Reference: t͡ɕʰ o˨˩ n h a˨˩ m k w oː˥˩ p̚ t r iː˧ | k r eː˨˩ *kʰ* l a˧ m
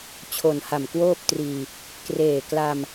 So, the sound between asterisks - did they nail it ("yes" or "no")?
no